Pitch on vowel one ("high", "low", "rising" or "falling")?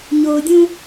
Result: low